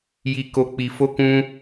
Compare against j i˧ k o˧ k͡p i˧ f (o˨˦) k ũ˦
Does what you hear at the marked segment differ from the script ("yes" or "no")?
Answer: yes